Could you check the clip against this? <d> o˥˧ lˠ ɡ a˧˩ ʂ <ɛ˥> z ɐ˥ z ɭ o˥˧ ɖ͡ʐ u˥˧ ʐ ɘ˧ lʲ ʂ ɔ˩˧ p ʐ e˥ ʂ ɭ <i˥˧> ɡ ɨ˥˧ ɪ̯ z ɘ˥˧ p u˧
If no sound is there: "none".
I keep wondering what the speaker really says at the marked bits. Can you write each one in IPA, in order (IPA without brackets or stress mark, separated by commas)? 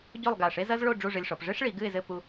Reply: ɟ, e˥, i˩˧